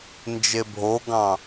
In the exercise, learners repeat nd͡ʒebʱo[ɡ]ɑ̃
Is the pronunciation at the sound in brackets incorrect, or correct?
correct